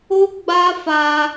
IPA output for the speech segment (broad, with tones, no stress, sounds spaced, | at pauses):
o˦ ɡ͡b a˦ f a˧